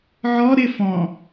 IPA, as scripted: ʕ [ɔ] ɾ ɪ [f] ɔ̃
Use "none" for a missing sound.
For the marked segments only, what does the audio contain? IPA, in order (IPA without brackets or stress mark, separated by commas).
ɔ, f